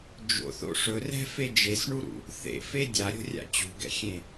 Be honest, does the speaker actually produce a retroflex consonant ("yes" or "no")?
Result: yes